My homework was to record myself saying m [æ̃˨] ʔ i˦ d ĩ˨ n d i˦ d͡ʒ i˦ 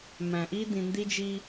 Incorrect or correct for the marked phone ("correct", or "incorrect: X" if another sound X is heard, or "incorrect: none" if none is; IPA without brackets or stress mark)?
correct